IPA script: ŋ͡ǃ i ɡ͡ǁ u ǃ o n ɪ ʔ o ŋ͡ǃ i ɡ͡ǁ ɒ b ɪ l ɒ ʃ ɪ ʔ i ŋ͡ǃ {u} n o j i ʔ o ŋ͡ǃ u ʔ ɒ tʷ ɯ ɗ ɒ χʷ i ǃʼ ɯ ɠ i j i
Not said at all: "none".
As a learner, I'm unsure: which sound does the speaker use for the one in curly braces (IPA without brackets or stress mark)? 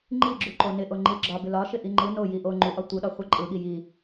ɯ